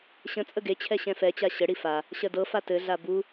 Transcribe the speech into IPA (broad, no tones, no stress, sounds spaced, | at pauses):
ɕ ə̃ t͡sʼ ə ɡ e t͡ɕʰ ɛ ɕ ɛ̃ f ɛ t͡ɕ a ɕ ə ɽ i f a | ɕ ɜ d ɤ f a t ɘ ɮ a b u